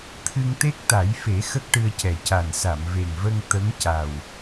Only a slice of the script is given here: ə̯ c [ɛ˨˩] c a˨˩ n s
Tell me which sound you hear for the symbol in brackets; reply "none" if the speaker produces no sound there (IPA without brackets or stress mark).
ɛ˨˩